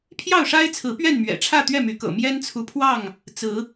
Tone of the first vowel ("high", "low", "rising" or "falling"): falling